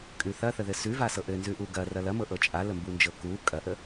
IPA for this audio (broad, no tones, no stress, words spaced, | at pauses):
kʼʉ θɐθəðɘ sʉvasɤ ʔɘnzʉʔu ɡɐrɐ lɐmɤʔɤ t͡ʃʼaləmbund͡ʒɤ ku kʼɐʔə